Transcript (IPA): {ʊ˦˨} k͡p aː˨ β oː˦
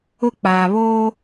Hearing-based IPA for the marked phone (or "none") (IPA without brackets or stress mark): ʊ˦